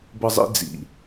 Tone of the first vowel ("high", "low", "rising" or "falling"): high